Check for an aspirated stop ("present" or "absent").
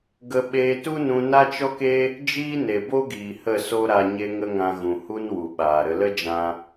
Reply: absent